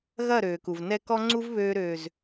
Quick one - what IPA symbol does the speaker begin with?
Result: ɣ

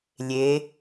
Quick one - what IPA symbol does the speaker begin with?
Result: lʲ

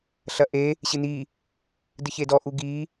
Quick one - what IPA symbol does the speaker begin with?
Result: ɬ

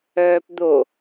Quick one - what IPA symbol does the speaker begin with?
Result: œː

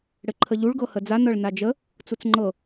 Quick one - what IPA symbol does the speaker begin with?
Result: ɽ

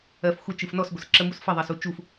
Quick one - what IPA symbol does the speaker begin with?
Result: ɜ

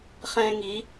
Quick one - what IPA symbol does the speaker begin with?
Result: χ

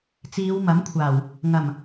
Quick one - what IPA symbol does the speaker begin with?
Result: t͡s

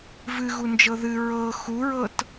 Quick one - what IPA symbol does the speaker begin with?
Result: v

